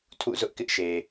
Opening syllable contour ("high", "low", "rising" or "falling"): falling